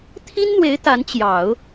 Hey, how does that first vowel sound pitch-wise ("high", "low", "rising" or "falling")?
high